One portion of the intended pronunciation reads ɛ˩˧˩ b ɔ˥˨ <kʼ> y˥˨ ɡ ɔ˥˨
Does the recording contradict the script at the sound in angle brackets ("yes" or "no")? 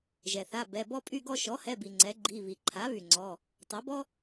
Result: yes